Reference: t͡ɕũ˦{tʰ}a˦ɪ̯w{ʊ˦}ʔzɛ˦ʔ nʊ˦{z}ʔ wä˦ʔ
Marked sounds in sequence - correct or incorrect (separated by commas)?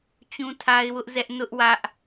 correct, correct, incorrect